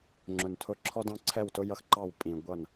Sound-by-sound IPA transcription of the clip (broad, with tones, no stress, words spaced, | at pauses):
ŋ͡ǁʊ˨n tʰʊ˦ ǁʰɔ˦dɑ̃˦ǀʰɛ˦˨wtʊ˦ jʌ˦xǃɑ˦˨w pʼĩ˨ ɡʷʌ˦˨n